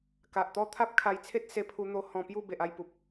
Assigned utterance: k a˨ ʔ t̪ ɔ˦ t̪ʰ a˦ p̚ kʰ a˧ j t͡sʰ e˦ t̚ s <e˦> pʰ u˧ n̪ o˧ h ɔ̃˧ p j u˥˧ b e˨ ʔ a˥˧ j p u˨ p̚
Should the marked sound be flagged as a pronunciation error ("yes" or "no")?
yes